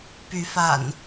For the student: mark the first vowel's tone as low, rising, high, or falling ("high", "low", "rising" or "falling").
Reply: rising